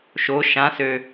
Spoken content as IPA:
ʃo ʃãsø

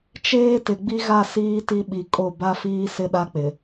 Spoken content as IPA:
t͡ʃeː˦ tɪ˨ ɡ͡bi˦ɣa˦˨ siː˦ti˦ɓi˨ kʼo˦˨ ba˦fiː˦ sɪ˦ɗa˦k͡pɪ˨

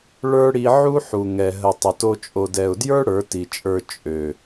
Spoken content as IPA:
ɭə˞˦ɽi˧ ʕu˦ ħu˨ŋɛ˨ ɦə˨ tˤə˨to˧ t͡ʃʼo˨dɛ˨ʊ̯djə˞˦ ɽə˞˨˦ti˨t͡ʃʼə˞˧ t͡ʃʼø˨

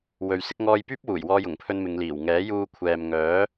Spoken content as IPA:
wɵ˨ɥsɪ˨˥k̚ŋɔː˧jpyː˥p̚ wuː˨˩jwɔː˧jʊ˨˩ŋpʰɵ˧n mɪ˨˧ŋliː˨˩wŋɛː˨˥ juː˧ kʷʰɛː˨mŋœː˨˥

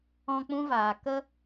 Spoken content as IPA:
ɔ̃˧ k͡pũ˦vaː˨ kə˦

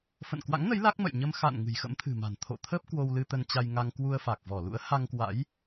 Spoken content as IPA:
fə̰˧˨nkwa̰˧˥ŋnə˨˦j la˦˥k̚ mə̰˧˨jɲə˧m xa̰˧˨n ŋɨ̤˨˩jxə̰˧˥mt̪ʰɨ̤˨˩ma̤˨˩n t̪ʰo̰˧˨t̪ʰə˦˥p̚ kwo˧wlɨ˧ t̪ə˧nt͡ɕa˧jŋa˧ŋ kwu˧ə̯fa˨˩k̚ vɔ˧˩lṵ˧˥ə̯ha˧ŋkwa̰˧˥j

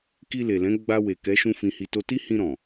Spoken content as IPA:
ki˧le˨lɛ̃˨˦ ɡ͡ba˧ we˨kɛ˨˦ ʃũ˦fĩ˧hi˧to˦ ti˦hĩ˧ ɾɔ̃˨

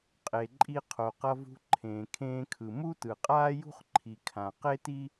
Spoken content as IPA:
qʼe˩ǃʼi˧qʰo˩ qʌ˧vṳ˧ ǃʰẽː˩kʰẽː˧kʰɯ˩ mu˥tɯ˩qʼaː˥jṳ˥χ ǃʰi˩kʰã˩ qe˥ti˥

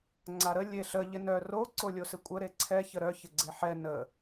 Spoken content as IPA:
ŋ͡ǀaɾə lʲeɬə ʎɪnœ ro ǀolʲosɪkʷʼə ɾeǀʰɛ çəɾœ çɪɡ͡ǀeħɛ nə

